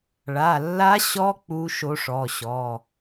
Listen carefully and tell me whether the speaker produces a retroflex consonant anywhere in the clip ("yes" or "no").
yes